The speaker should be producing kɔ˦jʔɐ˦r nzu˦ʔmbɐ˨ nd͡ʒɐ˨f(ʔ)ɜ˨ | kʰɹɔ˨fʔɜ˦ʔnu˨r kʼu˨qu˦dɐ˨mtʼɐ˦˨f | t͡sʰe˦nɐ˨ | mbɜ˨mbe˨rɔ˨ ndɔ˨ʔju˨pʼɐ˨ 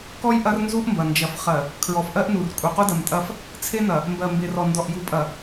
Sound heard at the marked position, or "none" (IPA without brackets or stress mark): χ